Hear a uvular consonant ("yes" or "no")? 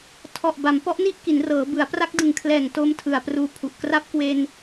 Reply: no